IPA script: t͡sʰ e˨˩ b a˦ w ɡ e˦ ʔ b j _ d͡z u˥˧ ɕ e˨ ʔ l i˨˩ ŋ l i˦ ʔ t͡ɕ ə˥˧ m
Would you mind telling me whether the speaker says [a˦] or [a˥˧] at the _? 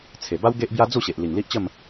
a˦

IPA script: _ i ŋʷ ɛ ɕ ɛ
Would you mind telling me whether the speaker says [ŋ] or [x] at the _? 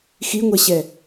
x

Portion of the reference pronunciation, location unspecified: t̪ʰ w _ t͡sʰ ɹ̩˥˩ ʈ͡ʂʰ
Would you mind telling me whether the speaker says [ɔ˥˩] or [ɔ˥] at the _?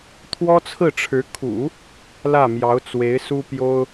ɔ˥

